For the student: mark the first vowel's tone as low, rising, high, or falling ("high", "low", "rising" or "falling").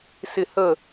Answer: falling